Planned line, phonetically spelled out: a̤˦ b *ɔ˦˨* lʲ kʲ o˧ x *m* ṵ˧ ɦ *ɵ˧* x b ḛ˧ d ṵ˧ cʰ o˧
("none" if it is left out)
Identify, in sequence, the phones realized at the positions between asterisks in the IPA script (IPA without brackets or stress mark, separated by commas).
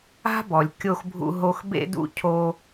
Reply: ɔ˨, bʱ, o˧